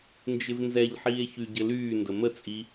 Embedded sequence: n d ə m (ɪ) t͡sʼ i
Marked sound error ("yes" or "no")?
yes